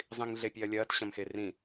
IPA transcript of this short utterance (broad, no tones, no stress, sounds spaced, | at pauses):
zˤ ĩ ŋ ɮ e pʲ e ɐ̯ lʲ ɐː t ɕ ɐ̃ m x e r ĩ